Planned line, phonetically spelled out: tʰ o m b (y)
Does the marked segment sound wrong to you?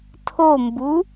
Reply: yes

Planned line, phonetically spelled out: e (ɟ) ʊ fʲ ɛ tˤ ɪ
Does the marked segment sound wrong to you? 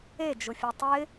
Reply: yes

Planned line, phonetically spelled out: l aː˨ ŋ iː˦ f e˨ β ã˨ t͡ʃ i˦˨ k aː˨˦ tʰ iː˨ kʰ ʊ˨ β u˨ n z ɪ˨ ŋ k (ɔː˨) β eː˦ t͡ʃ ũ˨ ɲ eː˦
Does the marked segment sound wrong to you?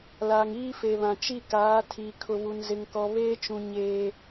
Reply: yes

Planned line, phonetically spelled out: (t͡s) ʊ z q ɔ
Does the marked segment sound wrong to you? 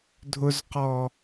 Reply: yes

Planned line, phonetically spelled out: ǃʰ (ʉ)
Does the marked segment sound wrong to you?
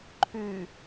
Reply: no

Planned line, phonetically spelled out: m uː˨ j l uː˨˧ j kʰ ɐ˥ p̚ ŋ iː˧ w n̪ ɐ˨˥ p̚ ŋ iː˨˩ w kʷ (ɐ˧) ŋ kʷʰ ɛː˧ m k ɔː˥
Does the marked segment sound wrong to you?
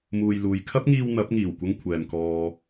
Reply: no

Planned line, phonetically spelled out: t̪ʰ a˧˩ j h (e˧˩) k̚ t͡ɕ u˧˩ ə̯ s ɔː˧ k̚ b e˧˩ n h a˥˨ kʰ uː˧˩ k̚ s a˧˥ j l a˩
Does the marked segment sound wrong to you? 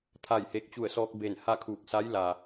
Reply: no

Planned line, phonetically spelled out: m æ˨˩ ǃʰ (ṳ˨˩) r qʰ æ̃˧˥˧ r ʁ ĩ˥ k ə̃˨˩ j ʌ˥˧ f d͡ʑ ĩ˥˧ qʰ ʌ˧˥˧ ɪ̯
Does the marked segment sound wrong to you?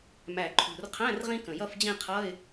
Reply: no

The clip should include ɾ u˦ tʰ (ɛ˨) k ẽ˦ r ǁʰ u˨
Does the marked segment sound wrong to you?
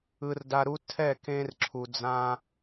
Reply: yes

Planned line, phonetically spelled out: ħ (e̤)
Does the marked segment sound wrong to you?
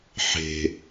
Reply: no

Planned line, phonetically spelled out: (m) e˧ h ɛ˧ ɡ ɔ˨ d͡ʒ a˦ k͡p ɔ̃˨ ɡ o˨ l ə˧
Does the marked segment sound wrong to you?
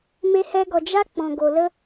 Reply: no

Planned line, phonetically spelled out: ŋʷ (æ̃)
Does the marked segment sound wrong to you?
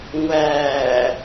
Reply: yes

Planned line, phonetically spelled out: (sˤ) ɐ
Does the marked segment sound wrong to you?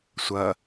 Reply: yes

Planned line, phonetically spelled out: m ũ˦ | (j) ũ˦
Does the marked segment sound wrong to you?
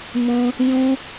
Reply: no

